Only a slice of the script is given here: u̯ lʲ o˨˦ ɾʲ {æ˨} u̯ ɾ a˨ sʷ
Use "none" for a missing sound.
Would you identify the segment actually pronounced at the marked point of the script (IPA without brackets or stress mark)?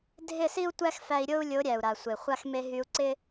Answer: æ˨